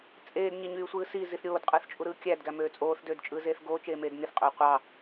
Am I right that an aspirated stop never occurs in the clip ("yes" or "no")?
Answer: yes